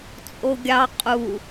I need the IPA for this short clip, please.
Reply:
t͡sʼ o ɡʲ ɑ qʼ u

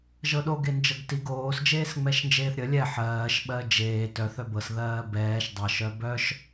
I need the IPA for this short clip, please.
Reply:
ʒ ɤ ɗ o ɡ e n d͡ʒ ɤ ɡ t i ɡ oː s d͡ʒ eː s ŋ͡m ɛ ʃ n d͡ʒ eː θ ɾʲ ə lʲ ɛ ħ ɜː ʃ ɓ ɜ d͡ʒ eː t œ θ œ b ɤ s ð ɜː b ɛː ʃ dˤ ɤ ʃ œ b œ ʃ

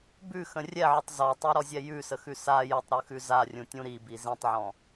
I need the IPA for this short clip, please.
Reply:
b ʉ x ə̃ rʲ ɛ ʕ ʏ tˤ z ɔ tˤ ɛ ɾ ɔ zʲ ɛ j ʉ s ə x ʉ s a j ʏ tˤ ɾ ʉ x ʉ z a rʲ ũ tʲ ũ ɾ i b i z ĩ tˤ ʕ ɔ̃

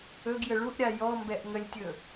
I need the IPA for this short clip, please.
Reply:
ɵ ɡ j ə ɭ u ʔ ɾʲ a j ɔ m b ɛ ʔ ŋ ə lʲ tʲ ɵ

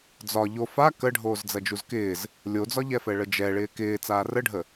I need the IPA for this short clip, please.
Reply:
d͡z ɒ ʎ o f a k ə ɖʱ oː z d͡z ɐ d͡ʒ u z k ɪː z | lʲ o d͡z ɒ ʎ ɛ f ɛ ɭ ə d͡ʒ ɛ ɭ ɪː k ɪː t͡s aː r ə ɖʱ ə

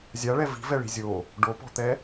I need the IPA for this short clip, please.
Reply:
zʲ a ɭ ɛ v i̤ v ɛ ɭ i̤ zʲ o | ɖ o p ɔ̤ t̪ ɛ

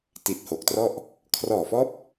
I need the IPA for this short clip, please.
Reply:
t i˨˩ t̚ h o˨˩ k̚ t r ɔ˥˩ ʔ | kʰ r ɔː˨˩ f ɔː˦˥ p̚

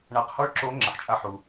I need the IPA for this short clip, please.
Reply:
ɳ a˧ q h ɔ˥ ɭ ǁ o˧˥ ŋ͡ǁ ə˩ ħ t͡ʃʼ a˧˥ ħ u˩

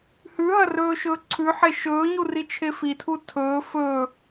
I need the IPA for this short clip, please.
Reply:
h ʉ ɦ ɐ r ɵː ʃ ɵː ǀʰ ʉ ħ e ʃ ɵː ɲ u r i t͡ʃʰ e f i tʰ u tʰ ɵː f ɵ

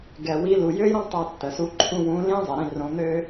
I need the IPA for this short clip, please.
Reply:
ɡ ɛ˨ w i˨˦ l u˨ j ø˦ j ɾ õ˦ tˤ o˧ tː ə˨ s u˧ ǃʰ ũ˧ w ũ˨˦ l ĩ˦ zˤ ɪ˨ ɾ ĩ˦˨ r õ˨˦ n̪ ø˦

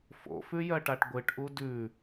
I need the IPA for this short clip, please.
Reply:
f o̰ f ʉ j ɜ ʈ a ʈ ɡʷ ɨ ʈ ʔ u d ʉ

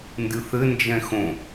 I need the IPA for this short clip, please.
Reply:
n d ɨ θ ɘ n d͡ʒ ɛ̃ x õ

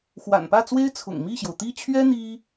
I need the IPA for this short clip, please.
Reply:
x w a̰˨˩ n p ä˥˩ t͡s w e˥ ɪ̯ t͡sʰ ʊ̰˨˩ ŋ m i˥˩ ɕ j o˩ ʊ̯ t̪ i˥˩ t͡ɕʰ ɥ ɛ˥ n̪ i˥

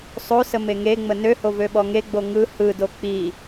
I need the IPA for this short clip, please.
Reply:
sˤ o s ə m e ŋ e ŋ͡m ə n ø h o v ø ɓ ɔ ŋ e ɡ͡b o ŋ ɯ h ɯ d o k͡p i

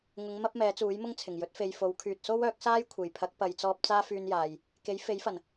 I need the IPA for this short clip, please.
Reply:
ŋ ʊ˨˧ ŋ m ɐ˥ p̚ m ɛː˨˥ t͡s uː˨˥ j m ʊ˥ ŋ t͡sʰ ɪ˨˩ ŋ j ɵ˨˥ t̚ f e˨ j f o˨˧ w kʰ yː˨ t̚ s o˥ w œː˨˥ k̚ s aː˥ j kʷʰ e˨˩ j pʰ ɐ˨˥ k̚ p ɐ˨ j t͡s ɔː˧ p̚ t͡s aː˥ f yː˧ n j aː˨ j | k e˨˥ j f e˨˥ j f ɐ˨˩ n

